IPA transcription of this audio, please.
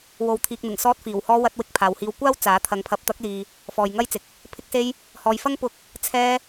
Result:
w o˨ w t̪ʰ iː˨ k̚ n̪ ɪ˨˩ ŋ s ɔː˧ t̚ f iː˨˩ w h ɔː˧ w ɐ˧ t̚ w ɪ˧ k̚ pʰ aː˨ w h iː˧ w kʷ aː˥ w t͡s aː˨˥ t̪ʰ ɐ˨˧ ŋ pʰ ɐ˨˥ p̚ t̪ ɐ˨˥ k̚ l iː˨ | f ɔː˨ j ŋ ɐ˥ j t͡s ɪ˨ k̚ | pʰ ɪ˧ k̚ s e˧ j | h ɔː˨ j f ɐ˥ ŋ p ʊ˨ k̚ | t͡sʰ ɛː˧

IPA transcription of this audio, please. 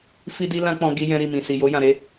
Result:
f i˦ d i˦ l ã˦ k͡p ɔ̃˧ ɡ i˦ j ɛ̃˦ ɾ i˦˨ m ĩ˨ s i˨ j o˧ j ã˨ ɾ e˧

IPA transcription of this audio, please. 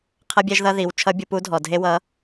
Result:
qʰ ʌ˥ bʲ ɛ˥ ʒ ð ʌ˥ ð i˩˧ w t͡ʃʰ ʌ˧˥ bʲ u˩˧ p u˧˥ dʱ ɔ˩ dʱ e˥ w ʌ˧˥

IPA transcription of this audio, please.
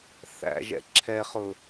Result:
θ æ̰ ʒ ɛ̰ ǁʰ ɛ χ ʊ

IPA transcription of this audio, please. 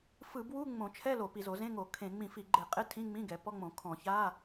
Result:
f ɯ˧˩˧ b w u˧˥˧ ŋ͡m õ˧˩˧ t͡ʃʰ ɛ˧˥˧ l o˧˩˧ p i˧˩˧ z o˧˩˧ z ẽ˧˥˧ ŋ o˧˩˧ kʰ ẽ˧˩˧ ŋ͡m ĩ˧˩˧ f i˧˩˧ ɡ͡ǃ e˧˩˧ qʼ e˧˥˧ tʰ ĩ˧˥˧ ŋ͡m ĩ˧˥˧ ɡ ɛ˧˩˧ p ɔ˧˥˧ ŋ͡m õ˧˩˧ kʰ ɔ̃˧˩˧ ç a˧˥˧

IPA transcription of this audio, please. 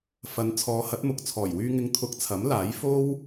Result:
f ɐ˨˧ n t͡sʰ ɔː˨˧ h ɐ˨˥ t̚ m ʊ˨ k̚ t͡sʰ ɔː˨˩ j w yː˧ ŋ ɪ˧ ŋ t̪ʰ ʊ˧ k̚ t͡sʰ ɐ˨˥ m l aː˨˥ j f o˥ w

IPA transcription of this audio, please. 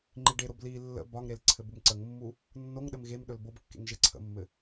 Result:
ŋ͡ǃ i ɖ e ɾ o b l i lː ə̰ b ɒ ŋ ɾ e l ǀʰ ɘ b u m ǀ ə ŋ mː u | nː o ŋ ɗ ɘ m ɣ e m ɗ ɵ l b o b kː ḛ ŋ ʒ e ǀʰ ə̰ mː ɘ

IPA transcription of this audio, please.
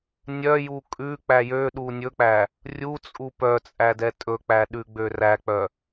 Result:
nʲ œ j u kʼ ʉ k͡p æ j ø ɗ u nʲ ɵ k͡p æ | rʲ u t͡sʼ u p œ t͡sʼ æ d ɛ tʼ ɵ k͡p æ ɗ ʉ ɡ͡b ø r æ k͡p œ

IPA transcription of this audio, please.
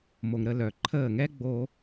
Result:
m o˩ ŋ ɾ ə˧˩ l œ˩ ǃʰ əː˧˩ ŋ ɛ˦ ɡ͡b o˦

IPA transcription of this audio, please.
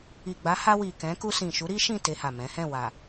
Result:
i˨ ɡ͡b a˨˦ h a˧ w i˨ k ɛ̃˨˦ k u˧ s ĩ˨ ʃ u˨˦ ɾ i˦ ʃ ĩ˦˨ t e˧ h a˨ m ɛ̃˨˦ h ɛ̃˦˨ w a˨

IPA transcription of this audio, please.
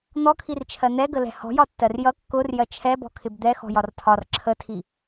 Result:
n̪ ɔ kʰ i r t͡ʃʰ ɜ n̪ ɛ ɡ ə l ɛ̤ h ɔ̤ j ɒ tː ɜ r j ʌ kː ʊ r j ɜ t͡ʃʰ ɛ b ɔ̤ kʰ ɪ b d̪ ɛ x ɔ̤ j ɒ r tʰ ɒ r ǁʰ ə tʰ i

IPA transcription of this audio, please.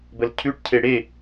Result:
b ə l cʰ ʉ ʈ cʰ e ɽ e

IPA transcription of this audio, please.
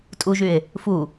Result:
tʼ u ʒ y e̯ | f u

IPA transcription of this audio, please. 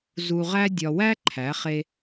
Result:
z u˧ ʁ æ˥ dʲ ɒ˧ w æ˥ ǃʰ æ˩˥ χ e˧

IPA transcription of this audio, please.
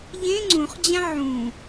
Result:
ʎ ẽ ŋ͡ǀ ũ χ d͡ʑ ã ʕ ũ

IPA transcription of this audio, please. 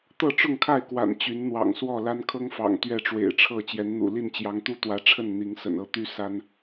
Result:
t̪ ɤ˥˨ ʈ͡ʂ ʊ˥˨ ŋ kʰ a˥˨ ɪ̯ k w a̰˨˩ n t͡ɕ y˨˦ n n̪ w ɑ̰˨˩ ŋ s w ɔ˥˨ l a˦ n kʰ ɤ˦ ŋ f ɑ̰˨˩ ŋ t̪ ɥ ɛ˥˨ ʈ͡ʂ w ḛ˨˩ ɪ̯ ʈ͡ʂʰ ɤ˥˨ t͡ɕ j ɛ˨˦ n n̪ ṵ˨˩ l i˥˨ n t͡ɕ j ɑ˨˦ ŋ t̪ u˦ t̪ w ä˨˦ ʈ͡ʂʰ ə˥˨ n n̪ i˨˦ ŋ s ə̰˨˩ n ɤ˦ t̪ y˦ s a˦ n

